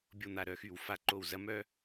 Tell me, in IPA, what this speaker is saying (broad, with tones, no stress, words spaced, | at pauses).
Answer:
bʲo˧˩ n̪a˧˩ɾœ˥˩xy˧˩˧w fa˧˩ ǃo˧˩wzɐ˧˥ mœ˧